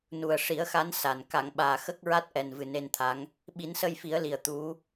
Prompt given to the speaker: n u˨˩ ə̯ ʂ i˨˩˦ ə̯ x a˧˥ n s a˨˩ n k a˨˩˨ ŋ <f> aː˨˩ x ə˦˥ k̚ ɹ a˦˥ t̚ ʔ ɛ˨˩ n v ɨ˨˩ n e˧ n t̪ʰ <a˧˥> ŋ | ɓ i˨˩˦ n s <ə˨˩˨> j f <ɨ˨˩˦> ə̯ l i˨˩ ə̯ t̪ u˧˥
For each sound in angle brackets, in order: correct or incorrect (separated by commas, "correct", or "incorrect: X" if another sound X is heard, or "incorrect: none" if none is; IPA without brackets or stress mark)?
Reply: incorrect: ɓ, correct, incorrect: ə˧, incorrect: i˨˩˦